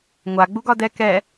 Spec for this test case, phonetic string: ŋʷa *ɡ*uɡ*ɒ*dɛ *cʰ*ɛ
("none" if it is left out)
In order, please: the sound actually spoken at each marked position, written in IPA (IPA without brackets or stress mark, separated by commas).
ɡ͡b, ɒ, k